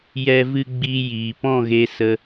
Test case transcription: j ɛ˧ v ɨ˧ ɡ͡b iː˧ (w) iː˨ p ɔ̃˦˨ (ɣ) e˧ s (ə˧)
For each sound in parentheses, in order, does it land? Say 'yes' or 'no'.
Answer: no, yes, yes

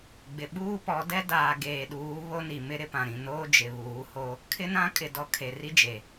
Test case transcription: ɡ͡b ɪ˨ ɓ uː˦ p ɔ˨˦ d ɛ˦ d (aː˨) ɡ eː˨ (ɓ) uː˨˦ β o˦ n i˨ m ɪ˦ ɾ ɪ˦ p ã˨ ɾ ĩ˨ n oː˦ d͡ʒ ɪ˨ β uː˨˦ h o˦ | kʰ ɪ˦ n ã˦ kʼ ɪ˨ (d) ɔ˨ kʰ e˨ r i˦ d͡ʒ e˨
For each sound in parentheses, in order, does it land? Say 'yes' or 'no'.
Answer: yes, no, yes

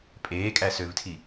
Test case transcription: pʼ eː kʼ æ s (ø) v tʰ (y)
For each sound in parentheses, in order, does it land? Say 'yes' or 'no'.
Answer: yes, no

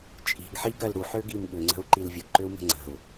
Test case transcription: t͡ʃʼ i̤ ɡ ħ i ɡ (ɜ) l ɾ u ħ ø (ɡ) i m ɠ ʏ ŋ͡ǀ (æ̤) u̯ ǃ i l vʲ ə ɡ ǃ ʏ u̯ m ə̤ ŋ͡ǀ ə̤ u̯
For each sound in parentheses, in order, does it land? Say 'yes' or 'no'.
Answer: yes, yes, no

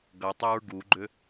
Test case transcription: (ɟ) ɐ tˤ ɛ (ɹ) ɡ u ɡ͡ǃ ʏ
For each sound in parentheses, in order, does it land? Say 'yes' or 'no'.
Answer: no, yes

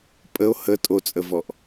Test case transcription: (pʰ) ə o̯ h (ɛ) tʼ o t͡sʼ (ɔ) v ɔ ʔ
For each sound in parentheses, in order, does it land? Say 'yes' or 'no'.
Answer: no, no, no

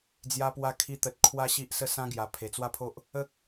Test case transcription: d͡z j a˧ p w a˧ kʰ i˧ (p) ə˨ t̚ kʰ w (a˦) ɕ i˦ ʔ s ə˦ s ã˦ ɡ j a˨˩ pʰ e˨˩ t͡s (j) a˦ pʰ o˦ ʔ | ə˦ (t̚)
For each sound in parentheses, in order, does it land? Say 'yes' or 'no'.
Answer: no, no, no, no

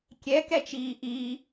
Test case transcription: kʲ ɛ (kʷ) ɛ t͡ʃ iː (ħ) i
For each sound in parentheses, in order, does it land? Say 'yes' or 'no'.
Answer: no, no

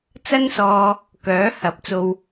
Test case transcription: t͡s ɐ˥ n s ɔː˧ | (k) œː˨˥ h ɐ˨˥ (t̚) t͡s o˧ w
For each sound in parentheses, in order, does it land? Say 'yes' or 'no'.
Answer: yes, no

